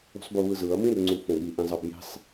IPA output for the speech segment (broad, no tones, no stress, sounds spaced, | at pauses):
ṳ sˤ b u β ɯ z ɯ ɐ̯ m ĩ r ŋ͡ǀ u f õ ɠ i ʔ ĩ zˤ ʌ b j i̤ sˤ